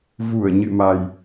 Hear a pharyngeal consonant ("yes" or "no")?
no